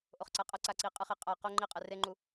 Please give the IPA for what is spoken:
ʔ o χ ǀ a qʼ ʌ ǀ a ǀ i qʼ ɯ χ e qʼ a q o ŋ͡ǃ i qʼ ɛ r e ŋ͡ǃ u

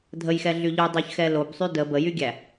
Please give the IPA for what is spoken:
dʱ ə j x ɛ ɮ y ʎ y dˤ y ç x ɛ l o b sˤ y d ə b ə j y ɡʲ æ

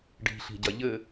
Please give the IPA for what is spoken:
ɖ i̤ ɬ i̤ ɟ ɐ ʎ ɘ

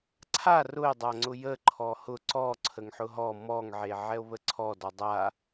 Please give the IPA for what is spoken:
ǀʰ a r ʊ e̯ dˤ a ŋ͡ǀ ʊ j ə ǃʰ ɔ h ʊ ǀ ɔ ǀʰ ə ŋ ħ ʊ ɦ ɔ m ɔ ŋ ʕ e ʕ ɛ o̯ β ə ǀʰ ɔ d ɔ dˤ a

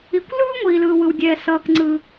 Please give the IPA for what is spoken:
i˩ kʷ l ɯː˥ ŋʷ iː˩ l ɯː˩ w ɯ˩ w dʲ ɛː˩ s ʌː˩ k ŋ͡ǀ ɯ˩

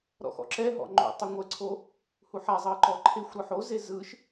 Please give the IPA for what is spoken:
ɾ ɔ̰ x ɔ̰ ǁ ɛ ɦ ɔ̰ ŋ͡ǃ o̰ tˤ u ŋʷ ɛ ǀʰ o | h u ħ a zˤ ɤ ǃ ɔ ǃʰ e xʷ ɾ ɯ ħ o z e z ɯ ʃ

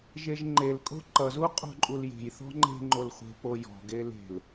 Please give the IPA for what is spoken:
ʒ e ʒ ŋ͡ǃ e l kʼ o̤ ǃ ʌ z u qʼ o̤ ǃʼ u l j e̤ j θ ɔ̤ ŋ͡ǃ e̤ ŋ͡ǃ o l χʷ e̤ p o j ɔ̤ ɡ e l e̤ l

